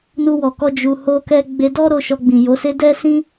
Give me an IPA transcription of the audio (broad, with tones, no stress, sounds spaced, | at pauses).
n u˧ w ɔ˨ k ɔ˧ d͡ʒ u˨ h o˧ k ɛ˧ ɡ͡b e˧ d ɔ˦ ɾ o˧ ʃ ɔ˧ ɡ͡b ĩ˨ j o˨˦ s e˦ d ɛ˦ s ĩ˦